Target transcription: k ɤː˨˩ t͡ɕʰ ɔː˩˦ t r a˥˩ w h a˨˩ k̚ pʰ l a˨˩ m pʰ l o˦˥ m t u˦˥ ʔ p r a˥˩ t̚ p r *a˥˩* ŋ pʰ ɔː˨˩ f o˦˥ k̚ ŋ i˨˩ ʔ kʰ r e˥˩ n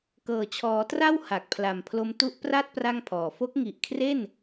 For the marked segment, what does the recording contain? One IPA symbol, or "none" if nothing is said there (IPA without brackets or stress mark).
a˥˩